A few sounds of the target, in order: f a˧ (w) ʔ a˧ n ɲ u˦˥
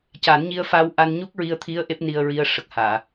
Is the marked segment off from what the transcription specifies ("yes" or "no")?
no